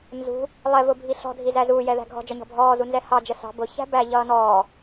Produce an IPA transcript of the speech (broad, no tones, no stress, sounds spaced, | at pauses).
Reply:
n z ṳ | lˠ ɛ v ʊ bʱ i ɬ ɔ̤ dʱ i z æ z uː j ɛ ð æ̤ ɡʱ ɔ̤ d͡ʒ ɒ ɲ ɔ̤ bʱ ɔː z u n z ɛ h ɑ d͡ʒ ə s ɑ̤ b ʊ ç æ̤ b æ ʎ ʌː n ɔː